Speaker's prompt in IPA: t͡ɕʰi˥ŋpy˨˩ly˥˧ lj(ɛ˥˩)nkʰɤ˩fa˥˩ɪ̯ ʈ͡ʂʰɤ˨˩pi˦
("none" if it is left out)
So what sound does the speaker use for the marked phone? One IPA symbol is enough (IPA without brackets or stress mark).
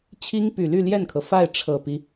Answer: ɛ˥˩